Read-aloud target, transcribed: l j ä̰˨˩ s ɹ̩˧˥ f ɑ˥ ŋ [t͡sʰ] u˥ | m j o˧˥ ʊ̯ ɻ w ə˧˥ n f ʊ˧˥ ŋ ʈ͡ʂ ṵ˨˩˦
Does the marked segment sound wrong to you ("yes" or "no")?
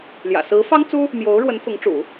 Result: yes